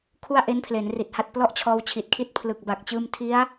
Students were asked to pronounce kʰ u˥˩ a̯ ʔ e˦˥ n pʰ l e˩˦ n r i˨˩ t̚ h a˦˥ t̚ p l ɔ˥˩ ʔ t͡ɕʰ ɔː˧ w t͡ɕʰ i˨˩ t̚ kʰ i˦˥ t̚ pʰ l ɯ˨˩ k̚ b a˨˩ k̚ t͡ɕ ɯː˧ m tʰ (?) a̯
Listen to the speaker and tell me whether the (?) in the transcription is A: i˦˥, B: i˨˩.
A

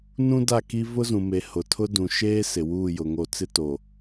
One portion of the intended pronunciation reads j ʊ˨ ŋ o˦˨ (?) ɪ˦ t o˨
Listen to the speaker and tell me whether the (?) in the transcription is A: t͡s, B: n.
A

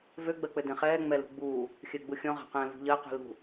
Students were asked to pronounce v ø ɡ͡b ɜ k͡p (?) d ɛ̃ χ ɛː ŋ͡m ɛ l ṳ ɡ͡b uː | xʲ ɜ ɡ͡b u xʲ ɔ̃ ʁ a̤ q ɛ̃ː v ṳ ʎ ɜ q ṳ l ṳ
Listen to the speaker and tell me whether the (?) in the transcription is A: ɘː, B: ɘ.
B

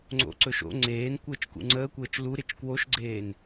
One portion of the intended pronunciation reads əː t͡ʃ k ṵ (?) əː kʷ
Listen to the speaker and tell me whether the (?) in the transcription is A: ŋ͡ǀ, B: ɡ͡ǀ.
A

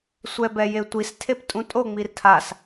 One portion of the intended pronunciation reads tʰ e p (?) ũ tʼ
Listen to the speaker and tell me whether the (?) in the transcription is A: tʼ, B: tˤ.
A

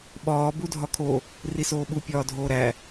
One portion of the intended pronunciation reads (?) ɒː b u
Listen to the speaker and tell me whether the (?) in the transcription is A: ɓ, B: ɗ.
A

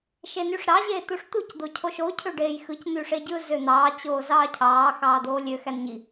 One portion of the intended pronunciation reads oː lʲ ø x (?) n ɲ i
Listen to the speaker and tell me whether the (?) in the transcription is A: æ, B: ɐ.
A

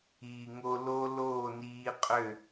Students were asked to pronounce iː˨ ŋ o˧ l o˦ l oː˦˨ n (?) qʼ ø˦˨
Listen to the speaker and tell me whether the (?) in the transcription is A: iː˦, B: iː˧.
B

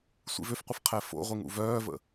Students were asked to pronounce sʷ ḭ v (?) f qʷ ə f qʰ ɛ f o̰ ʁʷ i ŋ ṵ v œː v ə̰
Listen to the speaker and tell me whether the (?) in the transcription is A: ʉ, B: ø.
B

